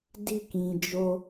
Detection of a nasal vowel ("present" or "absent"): present